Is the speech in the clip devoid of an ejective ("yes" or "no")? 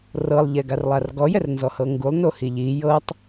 yes